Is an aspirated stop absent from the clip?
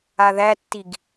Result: yes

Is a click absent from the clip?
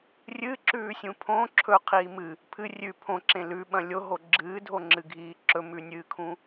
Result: no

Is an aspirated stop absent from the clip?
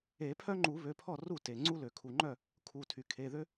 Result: no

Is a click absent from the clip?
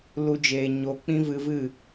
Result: yes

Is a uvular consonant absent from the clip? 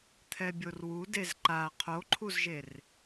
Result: no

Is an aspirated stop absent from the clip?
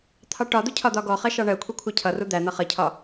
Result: no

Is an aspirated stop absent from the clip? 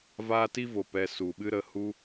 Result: yes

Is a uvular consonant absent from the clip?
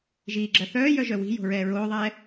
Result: yes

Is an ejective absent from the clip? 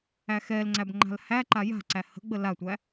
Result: yes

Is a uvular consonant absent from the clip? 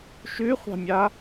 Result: no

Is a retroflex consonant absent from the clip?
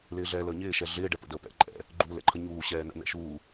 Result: no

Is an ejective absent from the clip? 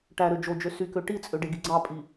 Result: no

